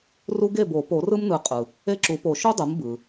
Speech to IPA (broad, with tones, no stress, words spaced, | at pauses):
ru˦ɡe˥˩bo˨˩˦ po˨˩˦rɯ˦mnɯ˨˩˦ qʼɯ˩ | e˥˩ǁu˨˩˦po˨˩˦ ʃo˦ dˤɯ˩˥mbɯ˩